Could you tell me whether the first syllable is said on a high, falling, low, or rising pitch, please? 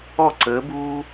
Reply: falling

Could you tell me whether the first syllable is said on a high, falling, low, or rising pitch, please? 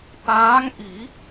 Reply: rising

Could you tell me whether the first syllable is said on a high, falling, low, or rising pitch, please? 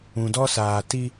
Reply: low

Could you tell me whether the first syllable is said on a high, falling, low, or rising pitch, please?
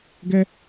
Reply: high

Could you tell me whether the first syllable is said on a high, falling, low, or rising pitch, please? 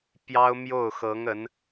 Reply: high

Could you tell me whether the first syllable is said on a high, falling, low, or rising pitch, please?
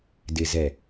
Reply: low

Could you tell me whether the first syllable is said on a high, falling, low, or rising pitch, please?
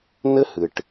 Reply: high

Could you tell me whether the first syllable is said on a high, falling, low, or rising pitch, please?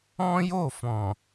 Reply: high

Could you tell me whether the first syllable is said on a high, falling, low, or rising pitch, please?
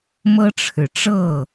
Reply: high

